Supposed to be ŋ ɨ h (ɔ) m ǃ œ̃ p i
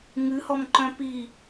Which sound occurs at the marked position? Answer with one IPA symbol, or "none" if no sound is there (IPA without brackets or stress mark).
ɔ